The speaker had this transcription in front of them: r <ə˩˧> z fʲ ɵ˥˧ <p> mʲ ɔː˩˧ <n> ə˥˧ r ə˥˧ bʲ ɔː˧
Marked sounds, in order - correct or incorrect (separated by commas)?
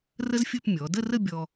incorrect, correct, incorrect